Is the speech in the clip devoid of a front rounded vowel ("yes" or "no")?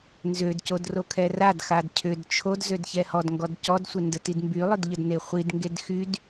no